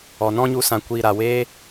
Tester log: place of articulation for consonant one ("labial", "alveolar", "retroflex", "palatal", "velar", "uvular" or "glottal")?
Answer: alveolar